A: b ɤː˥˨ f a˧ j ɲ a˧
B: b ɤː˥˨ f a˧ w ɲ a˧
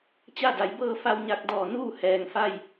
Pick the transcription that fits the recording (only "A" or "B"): B